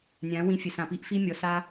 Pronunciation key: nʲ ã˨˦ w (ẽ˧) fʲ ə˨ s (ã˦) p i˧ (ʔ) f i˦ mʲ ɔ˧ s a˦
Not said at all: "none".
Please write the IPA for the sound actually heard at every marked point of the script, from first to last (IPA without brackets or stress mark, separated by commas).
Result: ĩ˧, ã˨, ʔ